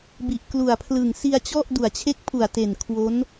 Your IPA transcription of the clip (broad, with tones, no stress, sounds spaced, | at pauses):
b i˨˩ ʔ k l u˨˩ a̯ pʰ l ɯ˨˩ ŋ s i˧ a̯ t͡ɕ ɔ˥˩ ʔ d u˨˩ a̯ t͡ɕʰ e˦˥ k̚ pʰ u˨˩ a̯ t e˨˩ n kʰ w o˦˥ n